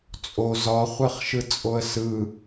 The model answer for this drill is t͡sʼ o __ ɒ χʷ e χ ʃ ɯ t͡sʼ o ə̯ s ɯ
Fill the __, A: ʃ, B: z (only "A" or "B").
B